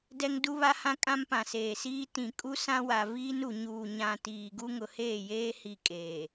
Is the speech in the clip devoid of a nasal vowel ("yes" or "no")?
no